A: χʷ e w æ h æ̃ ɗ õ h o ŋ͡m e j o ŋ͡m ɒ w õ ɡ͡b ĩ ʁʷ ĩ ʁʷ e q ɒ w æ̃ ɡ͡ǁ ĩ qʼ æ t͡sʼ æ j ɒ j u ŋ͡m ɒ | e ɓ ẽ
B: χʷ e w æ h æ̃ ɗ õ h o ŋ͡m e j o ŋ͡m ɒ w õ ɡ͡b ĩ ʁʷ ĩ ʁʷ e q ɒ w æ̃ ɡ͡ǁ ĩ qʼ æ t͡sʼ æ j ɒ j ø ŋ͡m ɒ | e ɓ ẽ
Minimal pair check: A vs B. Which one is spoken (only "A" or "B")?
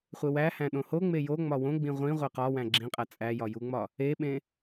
A